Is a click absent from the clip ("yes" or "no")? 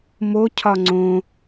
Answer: no